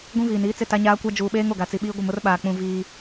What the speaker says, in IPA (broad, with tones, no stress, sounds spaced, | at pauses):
ɡʷ ĩ˦ v iː˨ n iː˦ t͡s ɪ˦˨ t a˦ ɲ aː˦ kʷ a˦ d͡ʒ uː˨ ɓ eː˦ ŋ o˨ ɡ a˨ t͡s i˨ ɓ iː˦ ɡʷ ɪ˦˨ m ʊ˦ r ɓ aː˨ k͡p ũ˨ v iː˦